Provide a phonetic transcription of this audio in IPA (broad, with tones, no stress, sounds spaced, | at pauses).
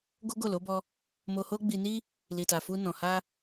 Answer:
ɡ o˦ ɡ o˦˨ l o˨˦ b ɔ˧ | m o˧ h o˦ ɡ͡b i˧ n i˦ | l i˨ t a˨ f u˧ n ɔ̃˨ h a˧